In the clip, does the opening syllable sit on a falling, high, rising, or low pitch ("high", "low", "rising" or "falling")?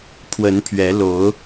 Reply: rising